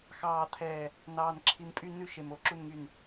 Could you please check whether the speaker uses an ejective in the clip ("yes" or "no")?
yes